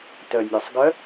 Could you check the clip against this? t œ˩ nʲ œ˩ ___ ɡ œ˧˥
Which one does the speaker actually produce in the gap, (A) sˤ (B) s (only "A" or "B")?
A